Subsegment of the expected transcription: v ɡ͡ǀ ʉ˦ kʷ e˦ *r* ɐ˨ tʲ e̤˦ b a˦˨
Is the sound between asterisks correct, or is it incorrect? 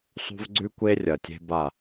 incorrect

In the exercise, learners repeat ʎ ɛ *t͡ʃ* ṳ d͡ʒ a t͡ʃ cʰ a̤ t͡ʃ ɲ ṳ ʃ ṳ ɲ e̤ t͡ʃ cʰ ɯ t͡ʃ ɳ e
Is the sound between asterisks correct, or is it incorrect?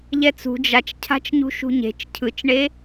incorrect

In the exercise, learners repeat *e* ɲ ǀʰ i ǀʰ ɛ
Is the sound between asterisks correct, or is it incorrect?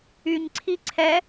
incorrect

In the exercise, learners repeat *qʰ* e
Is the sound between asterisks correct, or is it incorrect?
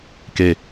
incorrect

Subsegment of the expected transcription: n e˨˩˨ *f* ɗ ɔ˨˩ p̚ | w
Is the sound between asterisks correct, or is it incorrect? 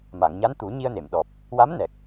incorrect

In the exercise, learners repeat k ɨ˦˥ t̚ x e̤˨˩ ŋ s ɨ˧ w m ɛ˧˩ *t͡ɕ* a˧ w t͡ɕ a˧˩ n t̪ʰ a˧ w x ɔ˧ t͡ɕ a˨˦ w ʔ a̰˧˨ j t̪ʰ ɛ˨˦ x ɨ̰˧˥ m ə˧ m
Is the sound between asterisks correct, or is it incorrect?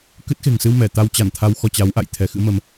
incorrect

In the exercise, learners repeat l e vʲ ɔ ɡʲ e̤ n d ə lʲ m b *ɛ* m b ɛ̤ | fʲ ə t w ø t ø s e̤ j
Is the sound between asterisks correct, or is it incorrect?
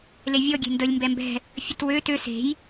correct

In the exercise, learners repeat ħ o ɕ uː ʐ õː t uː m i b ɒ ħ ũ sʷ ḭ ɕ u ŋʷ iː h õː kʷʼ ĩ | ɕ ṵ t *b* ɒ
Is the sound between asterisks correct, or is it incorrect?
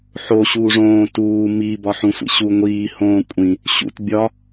incorrect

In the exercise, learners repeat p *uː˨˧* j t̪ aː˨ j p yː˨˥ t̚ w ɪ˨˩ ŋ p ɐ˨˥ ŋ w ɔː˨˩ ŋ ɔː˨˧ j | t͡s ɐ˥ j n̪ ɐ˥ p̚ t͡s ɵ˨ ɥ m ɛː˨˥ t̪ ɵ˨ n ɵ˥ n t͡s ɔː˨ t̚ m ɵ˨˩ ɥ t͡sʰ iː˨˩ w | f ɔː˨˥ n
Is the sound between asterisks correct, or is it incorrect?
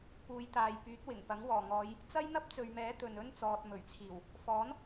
correct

